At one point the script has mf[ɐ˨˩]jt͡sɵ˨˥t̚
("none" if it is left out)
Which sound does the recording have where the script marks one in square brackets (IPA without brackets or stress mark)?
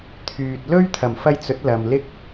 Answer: ɐ˧